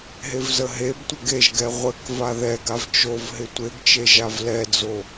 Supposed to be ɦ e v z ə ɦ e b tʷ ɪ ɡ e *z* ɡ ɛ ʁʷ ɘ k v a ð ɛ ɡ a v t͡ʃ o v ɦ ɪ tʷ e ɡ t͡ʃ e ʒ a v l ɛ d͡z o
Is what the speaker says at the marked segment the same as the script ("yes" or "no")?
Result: no